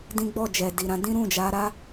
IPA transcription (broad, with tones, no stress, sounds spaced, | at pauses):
d ĩ˦ ɡ͡b ɔ˦˨ d͡ʒ ɛ˨ d i˨ ɾ ã˧ d ĩ˦ ɾ ũ˦˨ d͡ʒ a˨˦ ɾ a˧